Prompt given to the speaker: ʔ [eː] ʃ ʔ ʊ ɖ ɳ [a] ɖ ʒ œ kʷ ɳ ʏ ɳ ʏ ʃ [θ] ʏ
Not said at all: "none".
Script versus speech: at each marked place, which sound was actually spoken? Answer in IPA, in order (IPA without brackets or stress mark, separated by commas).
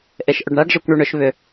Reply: e, a, β